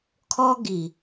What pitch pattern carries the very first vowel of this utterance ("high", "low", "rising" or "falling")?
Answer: high